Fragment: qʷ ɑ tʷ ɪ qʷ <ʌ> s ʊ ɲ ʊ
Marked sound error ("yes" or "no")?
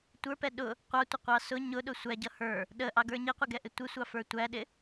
yes